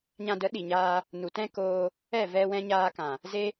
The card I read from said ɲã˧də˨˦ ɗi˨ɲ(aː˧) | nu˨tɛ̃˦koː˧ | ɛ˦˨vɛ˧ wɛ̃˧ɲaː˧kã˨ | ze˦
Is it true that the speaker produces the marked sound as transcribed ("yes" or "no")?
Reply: yes